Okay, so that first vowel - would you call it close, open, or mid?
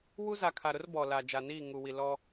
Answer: close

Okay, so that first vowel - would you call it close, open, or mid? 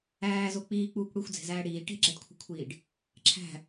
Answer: open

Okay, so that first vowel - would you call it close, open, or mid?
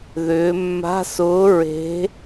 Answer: close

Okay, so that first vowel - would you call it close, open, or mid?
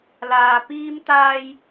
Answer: open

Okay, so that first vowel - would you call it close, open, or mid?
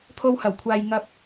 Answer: mid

